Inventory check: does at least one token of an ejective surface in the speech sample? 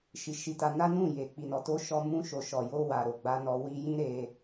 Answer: no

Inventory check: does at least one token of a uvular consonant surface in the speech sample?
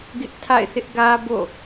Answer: no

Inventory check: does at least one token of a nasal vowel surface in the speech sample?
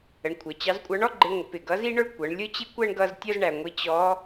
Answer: no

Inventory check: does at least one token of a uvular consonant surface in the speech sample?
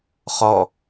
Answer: yes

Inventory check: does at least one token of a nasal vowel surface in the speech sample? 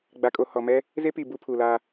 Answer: no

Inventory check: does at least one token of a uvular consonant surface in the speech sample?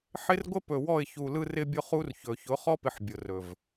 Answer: yes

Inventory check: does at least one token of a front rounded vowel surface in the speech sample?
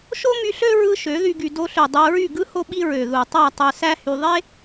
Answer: yes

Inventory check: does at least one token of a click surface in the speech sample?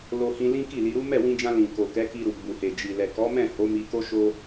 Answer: no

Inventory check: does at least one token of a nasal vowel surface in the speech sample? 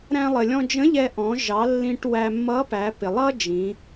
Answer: yes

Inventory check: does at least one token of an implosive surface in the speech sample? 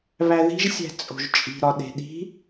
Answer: yes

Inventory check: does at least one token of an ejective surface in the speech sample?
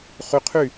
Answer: no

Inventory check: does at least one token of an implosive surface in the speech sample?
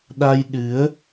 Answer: yes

